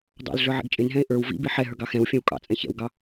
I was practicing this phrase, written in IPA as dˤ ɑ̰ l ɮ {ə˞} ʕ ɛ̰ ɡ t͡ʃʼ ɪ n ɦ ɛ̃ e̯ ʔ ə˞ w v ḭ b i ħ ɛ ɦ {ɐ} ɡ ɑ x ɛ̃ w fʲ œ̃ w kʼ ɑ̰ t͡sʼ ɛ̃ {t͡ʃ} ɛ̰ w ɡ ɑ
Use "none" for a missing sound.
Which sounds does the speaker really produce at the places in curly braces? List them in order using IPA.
ə˞, ə˞, ç

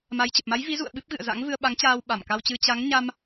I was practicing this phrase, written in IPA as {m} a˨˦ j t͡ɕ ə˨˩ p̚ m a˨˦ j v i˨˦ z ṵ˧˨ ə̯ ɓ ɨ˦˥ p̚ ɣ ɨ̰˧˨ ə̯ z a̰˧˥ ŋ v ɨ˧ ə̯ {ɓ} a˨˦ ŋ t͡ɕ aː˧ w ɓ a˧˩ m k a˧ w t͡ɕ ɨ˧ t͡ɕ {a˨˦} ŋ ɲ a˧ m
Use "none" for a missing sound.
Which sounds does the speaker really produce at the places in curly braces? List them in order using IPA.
m, ɓ, a˨˦

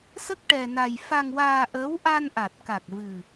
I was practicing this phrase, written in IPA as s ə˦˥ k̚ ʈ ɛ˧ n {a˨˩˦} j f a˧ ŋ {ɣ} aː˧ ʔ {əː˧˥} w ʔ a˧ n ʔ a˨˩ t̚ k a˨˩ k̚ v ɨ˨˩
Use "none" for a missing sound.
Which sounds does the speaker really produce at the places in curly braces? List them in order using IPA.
a˧, w, əː˧˥

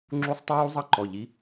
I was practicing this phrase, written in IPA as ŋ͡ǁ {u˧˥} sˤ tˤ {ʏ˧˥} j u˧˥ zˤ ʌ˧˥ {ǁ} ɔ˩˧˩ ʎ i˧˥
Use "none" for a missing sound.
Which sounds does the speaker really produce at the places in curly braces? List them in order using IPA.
u˧˥, ə˧˥, ǃ

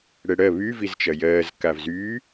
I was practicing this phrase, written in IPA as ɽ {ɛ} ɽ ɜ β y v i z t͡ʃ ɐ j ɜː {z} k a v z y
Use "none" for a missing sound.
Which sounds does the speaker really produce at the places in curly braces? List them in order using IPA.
ɛ, z

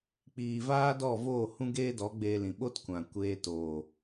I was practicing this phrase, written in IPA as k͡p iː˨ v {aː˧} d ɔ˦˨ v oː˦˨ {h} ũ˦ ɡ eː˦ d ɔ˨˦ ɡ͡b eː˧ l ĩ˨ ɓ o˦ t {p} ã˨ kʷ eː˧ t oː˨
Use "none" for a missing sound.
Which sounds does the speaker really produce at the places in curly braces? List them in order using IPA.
aː˦, h, kʷ

